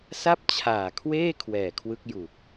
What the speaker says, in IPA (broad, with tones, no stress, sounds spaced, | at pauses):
s a˥˩ p̚ t͡ɕʰ aː˨˩ kʰ w eː˥˩ kʰ w ɛː˨˩ kʰ w ɯ˦˥ k̚ j u˨˩ k̚